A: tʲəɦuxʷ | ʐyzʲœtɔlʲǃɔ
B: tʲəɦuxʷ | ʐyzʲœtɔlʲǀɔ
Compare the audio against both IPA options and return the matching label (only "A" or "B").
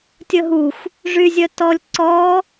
B